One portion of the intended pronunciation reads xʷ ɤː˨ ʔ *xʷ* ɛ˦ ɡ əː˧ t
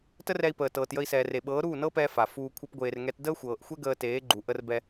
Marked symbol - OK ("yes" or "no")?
yes